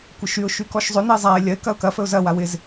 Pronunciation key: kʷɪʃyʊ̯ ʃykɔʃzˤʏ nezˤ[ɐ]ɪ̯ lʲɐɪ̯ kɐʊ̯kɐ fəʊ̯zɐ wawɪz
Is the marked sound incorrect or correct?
incorrect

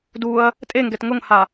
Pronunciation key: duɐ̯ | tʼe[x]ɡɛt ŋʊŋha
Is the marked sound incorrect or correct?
incorrect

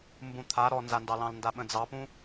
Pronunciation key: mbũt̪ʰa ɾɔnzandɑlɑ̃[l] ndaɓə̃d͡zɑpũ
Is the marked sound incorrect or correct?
correct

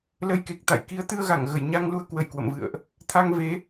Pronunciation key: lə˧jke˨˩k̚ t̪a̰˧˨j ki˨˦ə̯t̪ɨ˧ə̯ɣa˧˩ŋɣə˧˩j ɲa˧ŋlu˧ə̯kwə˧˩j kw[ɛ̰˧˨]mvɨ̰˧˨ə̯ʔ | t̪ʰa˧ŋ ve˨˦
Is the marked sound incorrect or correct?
incorrect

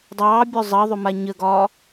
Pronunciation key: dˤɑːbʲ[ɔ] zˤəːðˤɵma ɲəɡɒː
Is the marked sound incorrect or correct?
incorrect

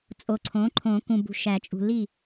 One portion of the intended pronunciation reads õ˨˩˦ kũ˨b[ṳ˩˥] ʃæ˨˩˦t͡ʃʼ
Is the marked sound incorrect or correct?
incorrect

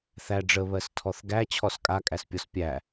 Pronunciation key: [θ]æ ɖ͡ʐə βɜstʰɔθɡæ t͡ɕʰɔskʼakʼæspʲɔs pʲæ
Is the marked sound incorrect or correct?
correct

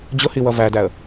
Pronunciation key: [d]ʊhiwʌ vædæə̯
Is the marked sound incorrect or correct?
incorrect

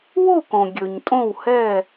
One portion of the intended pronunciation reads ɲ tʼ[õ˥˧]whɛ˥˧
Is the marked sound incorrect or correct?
correct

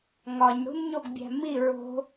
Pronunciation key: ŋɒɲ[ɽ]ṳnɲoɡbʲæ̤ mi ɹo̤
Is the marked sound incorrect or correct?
correct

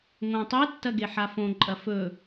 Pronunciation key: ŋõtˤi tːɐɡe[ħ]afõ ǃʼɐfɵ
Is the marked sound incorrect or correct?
correct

